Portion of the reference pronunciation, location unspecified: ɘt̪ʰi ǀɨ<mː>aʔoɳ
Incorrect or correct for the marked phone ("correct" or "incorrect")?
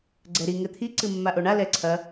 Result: correct